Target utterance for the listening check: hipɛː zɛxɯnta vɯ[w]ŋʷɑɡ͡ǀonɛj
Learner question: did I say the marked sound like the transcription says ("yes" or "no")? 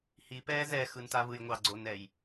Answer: no